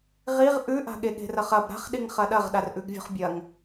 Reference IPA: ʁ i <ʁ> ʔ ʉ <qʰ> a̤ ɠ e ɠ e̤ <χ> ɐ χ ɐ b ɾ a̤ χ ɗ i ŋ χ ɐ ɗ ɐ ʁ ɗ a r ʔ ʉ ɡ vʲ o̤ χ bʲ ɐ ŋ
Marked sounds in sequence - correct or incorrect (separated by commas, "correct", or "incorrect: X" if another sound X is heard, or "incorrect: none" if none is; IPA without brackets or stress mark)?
correct, incorrect: ʔ, incorrect: r